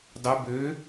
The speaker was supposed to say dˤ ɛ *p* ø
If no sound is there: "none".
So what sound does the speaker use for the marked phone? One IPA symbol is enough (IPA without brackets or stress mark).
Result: b